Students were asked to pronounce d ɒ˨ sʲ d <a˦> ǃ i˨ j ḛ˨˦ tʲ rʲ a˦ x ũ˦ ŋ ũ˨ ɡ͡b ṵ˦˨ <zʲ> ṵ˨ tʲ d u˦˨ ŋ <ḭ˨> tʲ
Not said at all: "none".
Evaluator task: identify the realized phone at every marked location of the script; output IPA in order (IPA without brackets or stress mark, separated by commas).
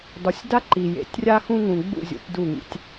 a˦, zʲ, ḭ˨